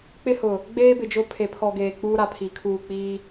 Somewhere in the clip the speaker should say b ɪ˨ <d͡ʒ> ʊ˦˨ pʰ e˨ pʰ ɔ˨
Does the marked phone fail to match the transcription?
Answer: no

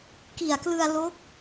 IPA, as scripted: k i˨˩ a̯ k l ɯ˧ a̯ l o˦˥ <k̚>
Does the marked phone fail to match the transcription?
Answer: no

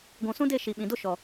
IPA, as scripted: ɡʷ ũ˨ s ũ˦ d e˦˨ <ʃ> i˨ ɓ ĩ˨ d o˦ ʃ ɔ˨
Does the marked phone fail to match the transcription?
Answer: no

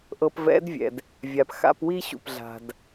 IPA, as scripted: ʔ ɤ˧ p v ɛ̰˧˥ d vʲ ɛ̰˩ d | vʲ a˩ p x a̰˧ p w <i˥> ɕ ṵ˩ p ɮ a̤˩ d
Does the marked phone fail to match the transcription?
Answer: no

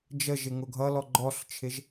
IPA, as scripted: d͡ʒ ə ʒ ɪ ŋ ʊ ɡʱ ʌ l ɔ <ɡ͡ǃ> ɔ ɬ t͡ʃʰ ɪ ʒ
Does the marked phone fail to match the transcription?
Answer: no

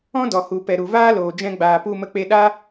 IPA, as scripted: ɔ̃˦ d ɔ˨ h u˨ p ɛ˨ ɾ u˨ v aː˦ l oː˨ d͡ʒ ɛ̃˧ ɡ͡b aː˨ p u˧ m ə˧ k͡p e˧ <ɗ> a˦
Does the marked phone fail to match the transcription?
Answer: no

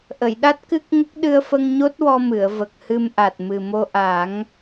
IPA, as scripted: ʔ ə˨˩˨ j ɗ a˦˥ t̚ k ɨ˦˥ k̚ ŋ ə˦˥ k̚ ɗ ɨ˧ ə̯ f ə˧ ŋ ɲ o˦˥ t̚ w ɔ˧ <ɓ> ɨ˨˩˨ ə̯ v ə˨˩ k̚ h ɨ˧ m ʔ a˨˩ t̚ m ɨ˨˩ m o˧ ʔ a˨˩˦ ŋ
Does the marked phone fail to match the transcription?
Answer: yes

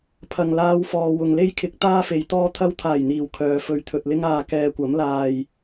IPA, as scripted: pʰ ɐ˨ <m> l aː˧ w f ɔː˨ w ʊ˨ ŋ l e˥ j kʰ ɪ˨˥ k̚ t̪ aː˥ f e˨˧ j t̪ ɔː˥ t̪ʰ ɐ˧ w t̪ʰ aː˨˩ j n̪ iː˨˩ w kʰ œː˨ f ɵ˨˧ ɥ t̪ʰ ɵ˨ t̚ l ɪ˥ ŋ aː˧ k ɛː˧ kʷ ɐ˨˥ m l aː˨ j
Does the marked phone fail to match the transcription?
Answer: yes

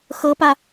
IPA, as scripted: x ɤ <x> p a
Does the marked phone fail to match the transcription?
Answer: yes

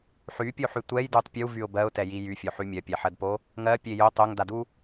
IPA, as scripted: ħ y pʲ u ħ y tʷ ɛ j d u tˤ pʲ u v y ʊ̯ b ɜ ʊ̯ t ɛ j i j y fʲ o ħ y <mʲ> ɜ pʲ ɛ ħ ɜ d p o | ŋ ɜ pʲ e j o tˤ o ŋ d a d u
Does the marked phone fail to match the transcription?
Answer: no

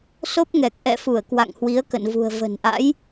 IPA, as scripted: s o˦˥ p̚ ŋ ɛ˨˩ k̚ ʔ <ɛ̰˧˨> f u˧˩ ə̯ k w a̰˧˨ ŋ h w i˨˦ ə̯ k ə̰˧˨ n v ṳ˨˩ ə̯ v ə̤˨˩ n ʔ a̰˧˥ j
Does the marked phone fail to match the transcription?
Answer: no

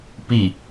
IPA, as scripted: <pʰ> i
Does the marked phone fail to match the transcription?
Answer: yes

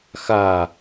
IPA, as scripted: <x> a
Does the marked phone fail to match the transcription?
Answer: no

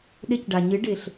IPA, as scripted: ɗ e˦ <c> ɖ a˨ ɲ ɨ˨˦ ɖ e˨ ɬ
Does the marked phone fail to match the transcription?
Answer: no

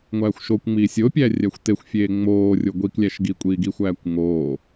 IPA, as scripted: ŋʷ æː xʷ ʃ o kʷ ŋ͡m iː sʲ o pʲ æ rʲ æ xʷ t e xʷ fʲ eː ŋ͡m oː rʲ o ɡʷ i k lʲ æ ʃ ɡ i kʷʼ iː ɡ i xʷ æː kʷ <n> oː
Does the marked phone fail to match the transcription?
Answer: yes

